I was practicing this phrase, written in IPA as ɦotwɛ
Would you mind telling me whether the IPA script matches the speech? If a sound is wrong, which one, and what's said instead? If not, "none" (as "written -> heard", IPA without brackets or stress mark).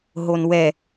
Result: t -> n